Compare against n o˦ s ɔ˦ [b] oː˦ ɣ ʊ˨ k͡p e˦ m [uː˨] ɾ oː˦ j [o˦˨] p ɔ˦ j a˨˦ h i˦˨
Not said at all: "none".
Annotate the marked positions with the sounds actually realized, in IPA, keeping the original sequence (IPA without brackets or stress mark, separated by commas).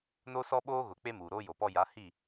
ɓ, uː˨, o˨